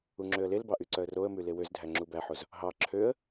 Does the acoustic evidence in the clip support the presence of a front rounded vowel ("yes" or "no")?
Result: yes